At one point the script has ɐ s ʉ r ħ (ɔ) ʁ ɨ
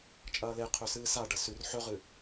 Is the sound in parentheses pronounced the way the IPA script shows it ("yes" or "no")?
no